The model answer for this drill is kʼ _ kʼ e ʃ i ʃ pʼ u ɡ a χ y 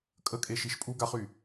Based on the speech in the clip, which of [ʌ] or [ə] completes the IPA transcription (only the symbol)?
ə